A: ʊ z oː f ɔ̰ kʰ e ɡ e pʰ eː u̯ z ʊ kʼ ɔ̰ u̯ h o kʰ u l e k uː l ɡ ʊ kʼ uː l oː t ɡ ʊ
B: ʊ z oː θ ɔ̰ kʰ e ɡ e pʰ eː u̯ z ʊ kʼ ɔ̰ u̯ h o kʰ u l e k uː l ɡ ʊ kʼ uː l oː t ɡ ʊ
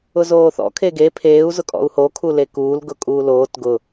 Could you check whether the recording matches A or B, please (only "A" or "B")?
B